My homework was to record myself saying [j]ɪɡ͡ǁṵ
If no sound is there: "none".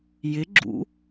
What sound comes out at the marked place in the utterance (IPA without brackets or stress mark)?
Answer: j